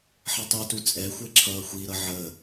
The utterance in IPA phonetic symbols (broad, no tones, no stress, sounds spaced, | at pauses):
ħ ə tˤ u t u t͡sʼ ɛ xʷ ɛ ǁʰ ʌː xʷ i ɾ ʌ ʕ ə